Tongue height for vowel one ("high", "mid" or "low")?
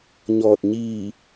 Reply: mid